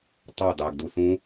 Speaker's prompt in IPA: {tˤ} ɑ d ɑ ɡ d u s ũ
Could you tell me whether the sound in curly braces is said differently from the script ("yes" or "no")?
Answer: no